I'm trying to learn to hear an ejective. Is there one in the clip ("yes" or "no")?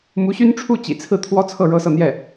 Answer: no